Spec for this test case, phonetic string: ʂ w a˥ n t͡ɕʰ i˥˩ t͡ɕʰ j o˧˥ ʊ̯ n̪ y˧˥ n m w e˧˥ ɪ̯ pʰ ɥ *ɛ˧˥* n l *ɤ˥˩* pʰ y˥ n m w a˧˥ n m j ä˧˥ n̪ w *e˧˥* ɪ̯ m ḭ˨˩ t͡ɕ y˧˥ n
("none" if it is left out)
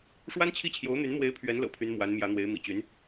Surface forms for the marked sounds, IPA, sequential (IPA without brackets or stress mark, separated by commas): ɛ˧˥, ɤ̰˨˩, e˧˥